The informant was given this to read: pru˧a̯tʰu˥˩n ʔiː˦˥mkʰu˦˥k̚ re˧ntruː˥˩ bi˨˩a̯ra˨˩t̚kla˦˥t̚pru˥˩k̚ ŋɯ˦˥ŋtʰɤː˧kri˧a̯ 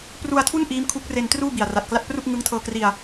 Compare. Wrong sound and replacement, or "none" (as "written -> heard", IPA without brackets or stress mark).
none